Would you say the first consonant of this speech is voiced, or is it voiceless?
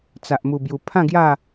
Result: voiceless